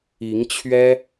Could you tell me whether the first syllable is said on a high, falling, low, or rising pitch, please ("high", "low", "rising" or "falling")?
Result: rising